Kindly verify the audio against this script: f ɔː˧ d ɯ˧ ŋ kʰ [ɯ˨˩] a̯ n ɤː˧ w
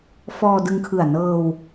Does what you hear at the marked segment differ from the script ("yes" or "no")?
no